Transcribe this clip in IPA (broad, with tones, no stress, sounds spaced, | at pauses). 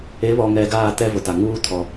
e˨˦ β ɔ˨ ŋ ɛ˨ ɡ aː˦˨ t ɛ˦ v ʊ˨ t a˨ ŋ uː˦ tʰ ɔ˨